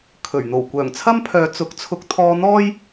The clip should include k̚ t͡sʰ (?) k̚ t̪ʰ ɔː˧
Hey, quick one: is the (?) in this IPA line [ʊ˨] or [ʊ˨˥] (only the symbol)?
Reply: ʊ˨˥